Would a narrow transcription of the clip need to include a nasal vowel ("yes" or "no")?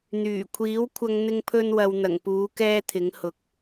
no